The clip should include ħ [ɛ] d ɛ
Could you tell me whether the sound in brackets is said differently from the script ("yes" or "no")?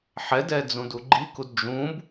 no